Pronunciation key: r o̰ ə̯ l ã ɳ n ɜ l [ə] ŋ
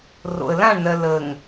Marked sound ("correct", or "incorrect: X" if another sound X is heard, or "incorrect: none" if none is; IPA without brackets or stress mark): correct